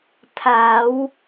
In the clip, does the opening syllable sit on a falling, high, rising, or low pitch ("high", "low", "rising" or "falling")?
rising